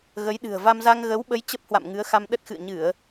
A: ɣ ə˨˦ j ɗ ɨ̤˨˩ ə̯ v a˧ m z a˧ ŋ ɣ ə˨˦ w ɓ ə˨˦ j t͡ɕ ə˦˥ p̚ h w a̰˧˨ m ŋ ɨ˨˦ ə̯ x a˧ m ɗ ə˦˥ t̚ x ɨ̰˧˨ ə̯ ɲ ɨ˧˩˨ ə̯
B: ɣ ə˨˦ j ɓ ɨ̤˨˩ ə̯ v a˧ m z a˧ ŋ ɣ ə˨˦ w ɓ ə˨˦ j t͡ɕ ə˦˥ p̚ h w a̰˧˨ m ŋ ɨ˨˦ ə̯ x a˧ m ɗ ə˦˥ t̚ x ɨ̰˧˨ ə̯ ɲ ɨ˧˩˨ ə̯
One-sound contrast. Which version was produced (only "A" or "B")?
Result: A